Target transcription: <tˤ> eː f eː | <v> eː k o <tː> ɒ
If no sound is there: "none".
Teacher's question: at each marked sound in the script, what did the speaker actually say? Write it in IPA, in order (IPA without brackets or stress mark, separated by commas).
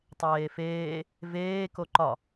tˤ, v, ǃ